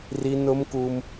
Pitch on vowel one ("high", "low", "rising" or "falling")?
high